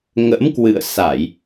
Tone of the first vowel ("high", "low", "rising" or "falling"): rising